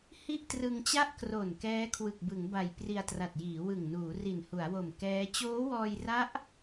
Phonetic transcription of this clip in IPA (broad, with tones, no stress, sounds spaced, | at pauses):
h i˥˩ ʔ t r ɯ˧ ŋ t͡ɕ a˥˩ ʔ k r o˨˩ n k ɛː˦˥ kʰ w ɯ˨˩ k̚ b ɯ˩˦ ŋ b a˨˩ j p r i˧ a̯ t r a˨˩ t̚ j iː˩˦ w ɯ˨˩ ŋ n uː˩˦ r i˨˩ n h u˩˦ a̯ w o˨˩ m k ɛː˦˥ t͡ɕ oː˦˥ w ɔː˧ j r a˦˥ ʔ